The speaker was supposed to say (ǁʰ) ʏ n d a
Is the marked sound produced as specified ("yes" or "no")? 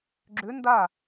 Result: no